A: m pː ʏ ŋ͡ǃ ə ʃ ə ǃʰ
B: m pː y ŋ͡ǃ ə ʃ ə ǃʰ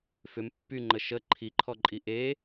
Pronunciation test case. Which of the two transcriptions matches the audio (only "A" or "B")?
B